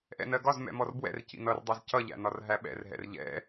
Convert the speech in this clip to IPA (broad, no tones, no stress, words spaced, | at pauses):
ʔɛ̰nɜɡɒz mɛ̰mɔrbwɛ̰r cḭnʌrdˤæz cʌʎæ̰nɒr ɦæɓɛ̰rɦɛ̰r ʎɛ̰